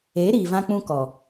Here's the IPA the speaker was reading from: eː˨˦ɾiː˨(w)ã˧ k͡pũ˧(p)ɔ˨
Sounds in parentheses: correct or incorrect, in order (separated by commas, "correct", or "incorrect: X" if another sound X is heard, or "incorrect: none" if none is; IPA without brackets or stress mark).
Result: incorrect: v, incorrect: k